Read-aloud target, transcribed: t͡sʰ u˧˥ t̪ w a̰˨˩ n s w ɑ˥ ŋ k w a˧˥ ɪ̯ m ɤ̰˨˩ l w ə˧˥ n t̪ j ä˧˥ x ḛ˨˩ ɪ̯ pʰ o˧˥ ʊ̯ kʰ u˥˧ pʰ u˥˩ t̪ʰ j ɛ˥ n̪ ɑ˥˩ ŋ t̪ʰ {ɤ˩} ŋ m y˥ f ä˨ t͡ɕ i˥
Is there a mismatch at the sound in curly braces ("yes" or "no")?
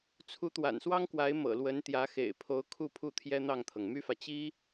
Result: no